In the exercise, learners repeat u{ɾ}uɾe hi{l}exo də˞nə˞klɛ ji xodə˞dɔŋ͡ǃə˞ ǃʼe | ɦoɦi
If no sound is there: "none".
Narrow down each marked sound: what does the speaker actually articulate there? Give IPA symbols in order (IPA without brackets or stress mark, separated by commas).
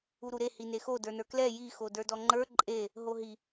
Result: ɾ, n